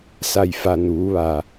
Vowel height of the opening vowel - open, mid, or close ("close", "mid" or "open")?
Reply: open